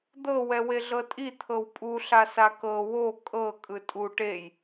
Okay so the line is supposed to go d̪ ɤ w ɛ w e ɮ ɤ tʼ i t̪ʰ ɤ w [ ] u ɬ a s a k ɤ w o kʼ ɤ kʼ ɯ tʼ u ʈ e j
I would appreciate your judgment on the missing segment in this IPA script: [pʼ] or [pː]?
pʼ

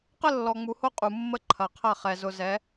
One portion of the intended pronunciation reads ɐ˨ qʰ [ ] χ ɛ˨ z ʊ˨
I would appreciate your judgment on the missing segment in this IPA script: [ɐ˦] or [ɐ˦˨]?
ɐ˦˨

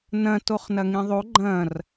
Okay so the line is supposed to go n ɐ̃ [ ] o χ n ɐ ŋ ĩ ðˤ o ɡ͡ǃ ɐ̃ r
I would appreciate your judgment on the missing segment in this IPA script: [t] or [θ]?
t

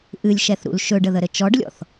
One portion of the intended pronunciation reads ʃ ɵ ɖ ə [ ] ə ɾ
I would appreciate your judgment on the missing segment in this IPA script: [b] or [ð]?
ð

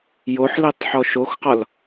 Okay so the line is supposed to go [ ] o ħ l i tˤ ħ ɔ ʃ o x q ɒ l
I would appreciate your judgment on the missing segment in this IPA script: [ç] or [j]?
j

